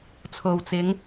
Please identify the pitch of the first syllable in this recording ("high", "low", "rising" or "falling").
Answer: low